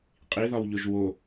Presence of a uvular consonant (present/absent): present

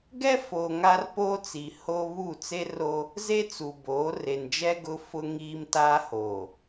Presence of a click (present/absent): absent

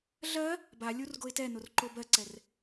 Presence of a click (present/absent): present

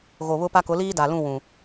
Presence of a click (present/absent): absent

